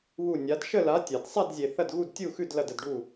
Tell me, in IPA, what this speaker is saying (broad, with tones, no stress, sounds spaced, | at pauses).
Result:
β u˥˨ nʲ a˨˥ d ʃ ə˥˨ l a˨˥ tʲ a˨ d sˤ a˥˨ d zʲ e˨ θ ɐ˥˨ d ɣ u˥˨ d tʲ u˥˨ x ʉ˥˨ d l ɐ˥˨ d ə˥˨ d ɖ u˥˨